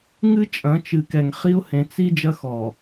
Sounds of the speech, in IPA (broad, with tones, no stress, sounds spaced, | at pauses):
ŋ ɨ˦ t͡ʃʼ ɐ̃˨˦ t͡ʃ ɨ˨ k ɛ˨ ŋ χ i˦ ʊ̯ h ẽ˨ t͡s i˦ d͡ʒ ɐ˦ x ɔ˨